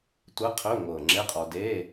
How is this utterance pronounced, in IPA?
tʷə˧˥˧qʰɵ˧˥˧ ŋʷɤ˨˩ ŋ͡ǁe˧˥˧qʼɔ˧ de˧˥˧

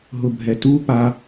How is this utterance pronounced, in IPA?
ɦʊbʱɛtu pa

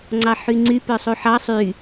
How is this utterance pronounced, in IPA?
ŋ͡ǀɑħyŋ͡ǀy pœsˤuħɑ sˤy

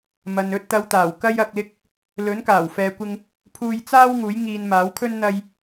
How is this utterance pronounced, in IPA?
mɐ˨n ɵ˧t̚t̪ɐ˨˧w t̪aː˨˩wkɐ˥jɐ˧k̚lɪ˥k̚ | lɵ˨˥n kaː˨˩wfɛː˨kʷɪ˧ŋ | pʰuː˧jt͡saː˥w ŋuː˨˥jŋiː˧nmaː˨˥wkʰɵ˥n n̪ɐ˥j

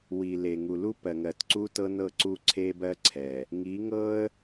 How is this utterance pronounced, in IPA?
wi˨le˨ ŋu˨lu˦pɜ˨ ŋɜ˨tǀu˦tɤ˦nɤ˦˨ ǀu˦ǀʰe˦bɜ˦ǀʰɛ˨ | ŋi˨˦ŋɤ˦ə̯

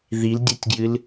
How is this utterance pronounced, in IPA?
ðildʲɨtʲɡjɨl

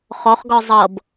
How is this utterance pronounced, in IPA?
χɔχɡɔ zˤɤb

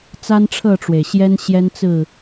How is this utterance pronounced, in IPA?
t͡sa˦nʈ͡ʂʰɤ˥˨ʈ͡ʂwe˩ɪ̯ɕjɛ˦n ɕjɛ˦nt͡sɹ̩˥˨

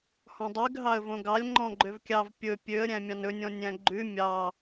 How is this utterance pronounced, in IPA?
hɔ̃dˤyɡ ɦɑə̯võɡɑlʲ ŋ͡ǃɔ̃ɡ͡ǃøvkʲɑv pʲɵ pʲøə̯ ɾʲæ̃mʲɑ̃nɵnʲɔ̃ nʲæ̃ɡ͡ǃʉ mʲɑ

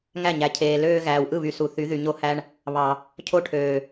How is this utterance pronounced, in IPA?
ŋæ˦˨ɲæ˨cʰeː˨ løː˦ ɣæː˨wʔɯ˦˨βy˨ su˨ θy˨˦ðy˨ɲo˦hæ˦ɳ | βɑ˨ | cʰo˦ʈʰøː˨

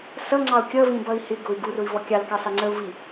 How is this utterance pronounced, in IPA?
sʌŋ͡ǀɑu̯ kʲʌ vĩbʌi̯hɪɡʊy̯ ɡurʊi̯ vɔkʲɑlkɑ sɑŋ͡ǀəu̯vi

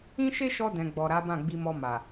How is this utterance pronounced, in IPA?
ĩ˦ʃe˦ʃɔ˧ dɛ̃˨ɡ͡bɔ˨ɾa˨˦ bã˦˨ɡ͡bi˧mɔ˧ ma˨

